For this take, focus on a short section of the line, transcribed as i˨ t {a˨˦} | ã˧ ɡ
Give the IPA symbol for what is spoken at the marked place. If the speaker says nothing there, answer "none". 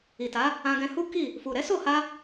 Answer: a˨˦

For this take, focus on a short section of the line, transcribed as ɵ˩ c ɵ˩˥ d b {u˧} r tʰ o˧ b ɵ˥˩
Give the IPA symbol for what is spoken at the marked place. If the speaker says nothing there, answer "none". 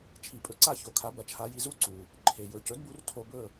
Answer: u˧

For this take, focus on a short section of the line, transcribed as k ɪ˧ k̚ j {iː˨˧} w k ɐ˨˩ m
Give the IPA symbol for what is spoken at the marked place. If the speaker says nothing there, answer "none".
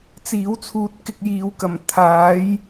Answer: iː˨˧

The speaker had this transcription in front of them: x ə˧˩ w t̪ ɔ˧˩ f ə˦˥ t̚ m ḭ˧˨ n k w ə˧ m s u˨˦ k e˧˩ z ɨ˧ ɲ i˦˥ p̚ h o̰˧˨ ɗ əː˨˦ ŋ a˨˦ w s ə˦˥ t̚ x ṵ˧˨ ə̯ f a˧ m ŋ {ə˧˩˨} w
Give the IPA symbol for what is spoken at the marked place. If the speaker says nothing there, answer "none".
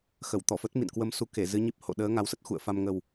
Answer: ə˨˩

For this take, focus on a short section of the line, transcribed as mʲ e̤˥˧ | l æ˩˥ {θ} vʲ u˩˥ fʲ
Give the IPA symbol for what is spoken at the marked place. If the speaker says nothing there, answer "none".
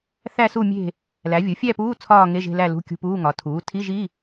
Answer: none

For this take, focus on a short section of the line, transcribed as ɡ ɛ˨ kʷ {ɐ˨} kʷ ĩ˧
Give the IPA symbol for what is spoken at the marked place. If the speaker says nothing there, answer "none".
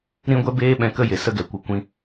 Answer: ə˨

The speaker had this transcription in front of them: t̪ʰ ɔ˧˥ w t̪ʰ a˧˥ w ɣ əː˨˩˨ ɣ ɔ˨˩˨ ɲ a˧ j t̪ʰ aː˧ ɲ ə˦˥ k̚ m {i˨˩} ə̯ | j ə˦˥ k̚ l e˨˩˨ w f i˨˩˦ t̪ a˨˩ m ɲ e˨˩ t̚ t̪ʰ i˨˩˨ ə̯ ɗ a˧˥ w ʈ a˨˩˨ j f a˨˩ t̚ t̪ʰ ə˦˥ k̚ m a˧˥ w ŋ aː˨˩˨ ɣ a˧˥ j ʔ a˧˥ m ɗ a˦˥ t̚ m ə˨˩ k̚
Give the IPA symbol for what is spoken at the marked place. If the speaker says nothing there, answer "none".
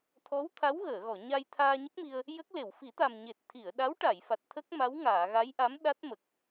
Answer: i˧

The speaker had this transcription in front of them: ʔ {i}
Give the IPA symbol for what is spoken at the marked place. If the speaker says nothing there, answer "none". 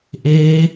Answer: e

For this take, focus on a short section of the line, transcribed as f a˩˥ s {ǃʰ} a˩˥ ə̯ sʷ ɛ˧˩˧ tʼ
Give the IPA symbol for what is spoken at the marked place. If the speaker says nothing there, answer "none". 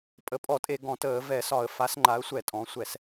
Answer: ŋ͡ǃ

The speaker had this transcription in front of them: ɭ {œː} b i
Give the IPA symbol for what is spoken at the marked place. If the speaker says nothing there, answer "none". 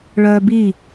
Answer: œː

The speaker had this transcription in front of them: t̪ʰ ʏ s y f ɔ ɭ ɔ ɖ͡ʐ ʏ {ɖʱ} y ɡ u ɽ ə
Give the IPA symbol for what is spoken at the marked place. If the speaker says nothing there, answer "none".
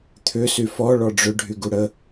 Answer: ɖʱ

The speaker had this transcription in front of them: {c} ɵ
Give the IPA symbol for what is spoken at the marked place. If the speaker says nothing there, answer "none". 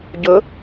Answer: ɟ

